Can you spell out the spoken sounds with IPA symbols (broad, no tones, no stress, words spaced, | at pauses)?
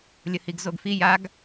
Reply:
lʲəhiɡzoɡfi jaɡ